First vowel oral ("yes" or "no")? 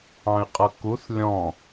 no